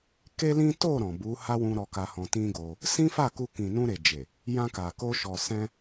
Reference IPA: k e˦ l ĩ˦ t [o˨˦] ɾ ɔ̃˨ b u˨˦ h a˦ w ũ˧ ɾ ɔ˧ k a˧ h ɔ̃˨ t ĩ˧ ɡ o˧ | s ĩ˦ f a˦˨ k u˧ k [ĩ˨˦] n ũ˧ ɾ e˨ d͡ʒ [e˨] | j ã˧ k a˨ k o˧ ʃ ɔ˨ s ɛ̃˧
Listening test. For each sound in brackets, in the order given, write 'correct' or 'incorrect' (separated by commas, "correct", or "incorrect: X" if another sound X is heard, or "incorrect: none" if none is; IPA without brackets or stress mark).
incorrect: o˦˨, incorrect: ĩ˨, correct